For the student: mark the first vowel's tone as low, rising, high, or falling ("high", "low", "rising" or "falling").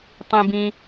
high